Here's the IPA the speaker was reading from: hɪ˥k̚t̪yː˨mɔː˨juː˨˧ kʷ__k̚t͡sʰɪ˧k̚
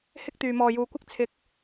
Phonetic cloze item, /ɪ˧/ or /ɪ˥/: ɪ˥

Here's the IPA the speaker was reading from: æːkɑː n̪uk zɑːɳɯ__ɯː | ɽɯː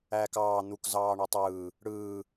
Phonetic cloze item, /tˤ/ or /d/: tˤ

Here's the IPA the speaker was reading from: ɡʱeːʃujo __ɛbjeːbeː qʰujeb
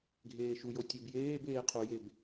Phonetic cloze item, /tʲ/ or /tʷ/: tʲ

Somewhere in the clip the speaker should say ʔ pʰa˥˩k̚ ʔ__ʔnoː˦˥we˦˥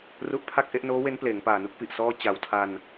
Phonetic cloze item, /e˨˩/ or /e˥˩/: e˥˩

